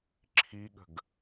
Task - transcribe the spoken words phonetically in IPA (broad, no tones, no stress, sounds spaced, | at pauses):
ǁʰ i ɠ ə̤ ɡ